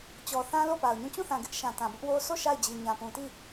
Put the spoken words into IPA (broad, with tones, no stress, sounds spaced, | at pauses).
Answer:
t͡ɕ ɔ˨ θ ã˦ l o˦˨ p a˨ ʊ̯ ɲ ũ˦˨ t͡ɕ ũ˦˨ θ ã˨ ɡ ɪ˦ ʔ ʃ ã˨ t ã˨ b ʊ˦ ʔ w o˦ s o˦˨ ʃ a˦˨ ɪ̯ d͡ʑ i˨ ɲ ã˨ p ũ˨ t i˦˨